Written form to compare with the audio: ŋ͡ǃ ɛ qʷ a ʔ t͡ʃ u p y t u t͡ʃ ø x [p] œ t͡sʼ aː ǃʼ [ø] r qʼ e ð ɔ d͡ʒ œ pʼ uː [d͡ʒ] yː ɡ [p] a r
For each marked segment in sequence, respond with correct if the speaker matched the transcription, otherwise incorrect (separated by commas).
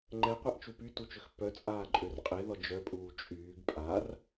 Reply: correct, correct, incorrect, incorrect